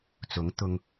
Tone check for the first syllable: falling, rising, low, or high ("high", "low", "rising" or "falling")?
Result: rising